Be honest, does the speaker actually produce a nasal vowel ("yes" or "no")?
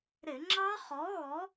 no